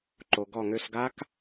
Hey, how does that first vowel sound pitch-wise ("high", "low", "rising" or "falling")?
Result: low